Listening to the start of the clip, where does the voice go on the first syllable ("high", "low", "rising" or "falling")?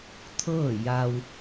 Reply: falling